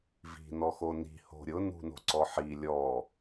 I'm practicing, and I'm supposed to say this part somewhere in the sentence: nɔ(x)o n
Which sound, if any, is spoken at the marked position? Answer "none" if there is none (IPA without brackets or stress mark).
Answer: x